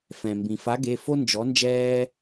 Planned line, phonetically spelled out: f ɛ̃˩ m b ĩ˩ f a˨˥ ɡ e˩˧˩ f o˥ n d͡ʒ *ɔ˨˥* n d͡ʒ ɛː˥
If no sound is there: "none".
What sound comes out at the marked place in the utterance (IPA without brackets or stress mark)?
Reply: ɔ˨˥